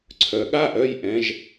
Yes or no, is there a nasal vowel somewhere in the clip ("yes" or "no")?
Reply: yes